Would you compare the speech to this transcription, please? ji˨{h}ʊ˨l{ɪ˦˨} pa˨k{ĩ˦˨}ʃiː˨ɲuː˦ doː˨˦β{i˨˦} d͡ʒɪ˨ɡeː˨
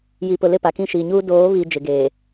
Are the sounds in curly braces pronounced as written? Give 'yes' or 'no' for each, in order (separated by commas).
no, yes, yes, no